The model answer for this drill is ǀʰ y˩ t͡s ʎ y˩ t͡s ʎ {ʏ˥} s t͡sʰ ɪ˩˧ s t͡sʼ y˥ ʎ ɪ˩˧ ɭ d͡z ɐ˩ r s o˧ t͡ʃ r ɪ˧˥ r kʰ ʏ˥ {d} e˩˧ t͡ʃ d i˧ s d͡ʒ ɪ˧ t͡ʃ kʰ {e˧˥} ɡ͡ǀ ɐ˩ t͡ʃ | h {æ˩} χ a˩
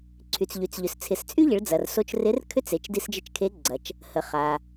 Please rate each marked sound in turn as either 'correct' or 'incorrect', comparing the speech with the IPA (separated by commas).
incorrect, incorrect, correct, incorrect